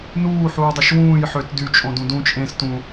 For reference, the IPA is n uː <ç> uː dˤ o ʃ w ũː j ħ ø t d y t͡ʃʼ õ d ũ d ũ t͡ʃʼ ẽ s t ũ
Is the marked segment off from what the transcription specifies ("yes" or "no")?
yes